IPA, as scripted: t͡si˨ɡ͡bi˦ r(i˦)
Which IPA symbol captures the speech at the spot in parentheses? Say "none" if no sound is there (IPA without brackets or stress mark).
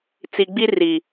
i˨